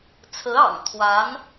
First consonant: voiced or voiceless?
voiceless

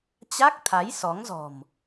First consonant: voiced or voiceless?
voiceless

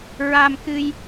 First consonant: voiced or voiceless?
voiced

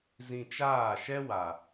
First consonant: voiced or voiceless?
voiced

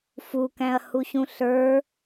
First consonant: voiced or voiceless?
voiceless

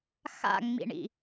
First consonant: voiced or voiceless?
voiceless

